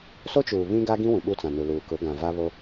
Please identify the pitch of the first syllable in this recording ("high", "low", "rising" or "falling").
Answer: high